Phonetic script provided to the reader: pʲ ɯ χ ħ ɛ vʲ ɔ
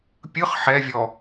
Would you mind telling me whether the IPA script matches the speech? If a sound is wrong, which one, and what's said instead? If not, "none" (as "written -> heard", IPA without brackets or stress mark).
none